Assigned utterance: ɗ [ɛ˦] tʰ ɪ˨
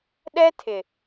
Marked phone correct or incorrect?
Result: correct